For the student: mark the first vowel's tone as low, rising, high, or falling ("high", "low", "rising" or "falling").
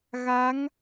rising